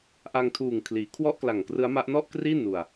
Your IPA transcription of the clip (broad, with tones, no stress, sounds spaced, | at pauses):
ʔ a˧ ŋ tʰ uː˨˩ ŋ kʰ l iː˩˦ kʰ w ɔ˥˩ ʔ k l a˨˩ ŋ k r ɯ˦˥ a̯ m a˦˥ ʔ n ɔ˥˩ ʔ k r iː˥˩ n u˧ a̯